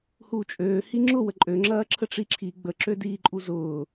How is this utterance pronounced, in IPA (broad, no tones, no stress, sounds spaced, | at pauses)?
h uː t͡ʃʼ øː h i ŋ͡ǁ ʊ w ə ǃʼ ø ŋ͡ǁ ɐː ǁʰ ə ʈ͡ʂ i ǁʰ i ɡ͡b ə ǁ ø d iː ǃʼ u z ʊː